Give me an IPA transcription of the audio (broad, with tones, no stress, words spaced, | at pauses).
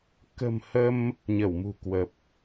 kə̤˨˩m hə˧m | ɲə˧˩wmṳ˨˩kwə˨˩p̚